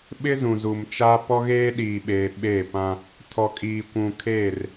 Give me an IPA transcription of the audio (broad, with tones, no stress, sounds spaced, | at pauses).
ɓ ɪ˦ z ũ˨ z u˨ m t͡ʃ aː˦ p ɔ˦ ɣ eː˦ ɗ iː˨ ɓ eː˨ ɓ e˦˨ p ã˦ | tʰ ɔ˨ kʼ iː˨ kʷ ũ˨ kʰ eː˦˨ r